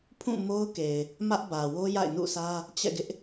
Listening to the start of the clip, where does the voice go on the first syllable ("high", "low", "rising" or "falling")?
falling